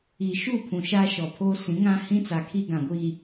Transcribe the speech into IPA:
i˨ʃu˦˨ pʰũ˨ʃaː˦ʃɔ˨pʰoː˦ sĩ˨˦ŋã˦hĩ˦t͡sa˨ kʰi˦ɡã˨ɡʷiː˨

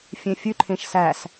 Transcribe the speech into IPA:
fʲẽfʲʉǃʰẽʃ sæs

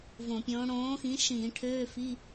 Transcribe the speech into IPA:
võ˧˩˧pʲõː˨˥ ɽõː˨˥xĩ˨˥ʃĩː˧˩˧ ʈʰøː˧˥˧fi˧˥˧

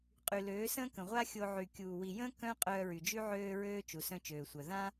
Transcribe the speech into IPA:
qʼy˨løː˨˦ sə̃ː˦kə̃˨ʁʷa˦xʲo˧ ʕy˨kʲuː˨ wi˨jə̃ː˦ kœ̃˦ qʼœː˧ɹy˨d͡ʒy˦ ʕøː˧ ɹøː˦ t͡ʃu˨sœ̃˦t͡ʃøː˨sʷœ˨ ðã˦

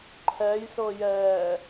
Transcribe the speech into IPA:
ǃʰɛjsɤjɛː

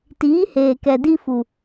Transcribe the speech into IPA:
tiː˨˦heː˨kɛ˨ di˦ fu˨

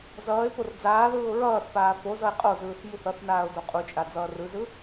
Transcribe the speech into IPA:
zʌːɪ̯ pord͡zaːðɯːʊ̯ ɹʌːθpaː fozʌɪ̯ qʼozɯːθ muθʌθnaːʊ̯ doqʼut͡ʃʼa d͡zʌːrɯzɯ

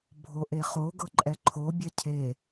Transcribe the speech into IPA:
bʱoʔeχo ɡɤǃʼɛǃʰo bʲɛcʰe

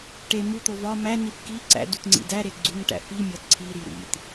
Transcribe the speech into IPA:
ʈe mut̪o vɒ mænif ki ǀæ̰dut ŋ͡ǀḭdæɾe ɡ͡ǀuŋʈæ̰ fimʲɒd ǀʰiɾi ɾḭt

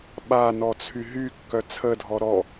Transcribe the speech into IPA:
ɓanɔt͡sʰy ɦykːœ t͡sʰədʱɔ ɾɔ

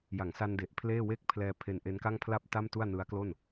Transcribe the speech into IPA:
ja˩˦ŋsa˧nde˨˩ʔ pʰleː˥˩we˥˩k̚ pʰlɛː˧ pʰe˧nʔe˦˥nka˥˩ŋ pʰla˥˩p̚ ta˥˩mtu˥˩a̯nɯ˦˥a̯klo˥˩n

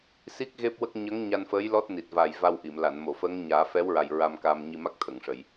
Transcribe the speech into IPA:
si˦˥k̚ ɣe˦˥p̚wə˦˥k̚ ɲə˧˥ŋ ɲa˧nfəː˧˥j lɔ˦˥t̚ni˨˩t̚ va˨˩j va˧wʔi˨˩˨mla˨˩˨n mo˨˩˨fəː˧˥ŋɲaː˨˩˦ fɛ˧˥wɹa˨˩j ɹa˧mkaː˧mɲi˧ma˦˥k̚ t̪ʰə˨˩˨ŋʂə˨˩˨j

